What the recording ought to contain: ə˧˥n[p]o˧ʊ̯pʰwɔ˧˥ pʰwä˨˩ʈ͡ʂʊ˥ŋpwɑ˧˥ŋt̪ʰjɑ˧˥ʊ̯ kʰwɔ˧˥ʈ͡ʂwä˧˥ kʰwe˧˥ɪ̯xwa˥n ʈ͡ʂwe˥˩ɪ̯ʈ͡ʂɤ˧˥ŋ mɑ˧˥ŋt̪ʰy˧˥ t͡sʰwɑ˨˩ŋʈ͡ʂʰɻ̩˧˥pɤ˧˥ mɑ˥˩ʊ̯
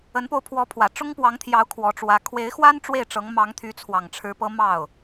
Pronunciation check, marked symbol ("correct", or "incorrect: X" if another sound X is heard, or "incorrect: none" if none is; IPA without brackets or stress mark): correct